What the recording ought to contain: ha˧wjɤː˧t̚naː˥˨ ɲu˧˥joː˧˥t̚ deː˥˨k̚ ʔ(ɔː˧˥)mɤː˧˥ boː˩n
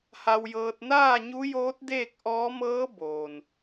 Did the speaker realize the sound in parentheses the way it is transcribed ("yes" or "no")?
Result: yes